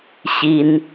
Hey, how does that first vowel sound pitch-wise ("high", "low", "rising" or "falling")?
high